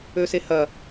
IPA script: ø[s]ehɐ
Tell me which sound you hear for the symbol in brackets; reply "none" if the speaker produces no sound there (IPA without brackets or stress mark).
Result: s